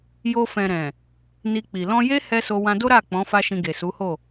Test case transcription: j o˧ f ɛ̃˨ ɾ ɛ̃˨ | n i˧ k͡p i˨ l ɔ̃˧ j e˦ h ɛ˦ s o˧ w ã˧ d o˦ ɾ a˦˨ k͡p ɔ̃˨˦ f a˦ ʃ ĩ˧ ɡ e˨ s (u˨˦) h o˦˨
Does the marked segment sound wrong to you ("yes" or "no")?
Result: no